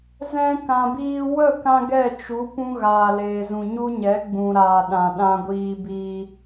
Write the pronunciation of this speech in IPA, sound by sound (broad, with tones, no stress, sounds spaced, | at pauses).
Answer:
z ɛ̃˧ k ã˨ b iː˧ w ə˦˨ k ã˧ ɡ ɛ˦˨ t͡ʃ u˨˦ p ũ˦ ɣ aː˨ l eː˨ z ũ˨ ɲ u˦ ɲ ɛ˨˦ ɡ͡b ũ˨ ɾ aː˨ ɗ ã˨ ɗ ã˧ ɡʷ iː˧ b iː˧